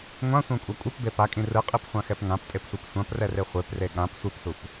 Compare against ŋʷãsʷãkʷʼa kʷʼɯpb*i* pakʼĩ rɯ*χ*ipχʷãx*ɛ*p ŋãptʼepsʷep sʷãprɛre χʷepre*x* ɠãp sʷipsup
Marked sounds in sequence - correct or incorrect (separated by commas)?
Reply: incorrect, incorrect, correct, incorrect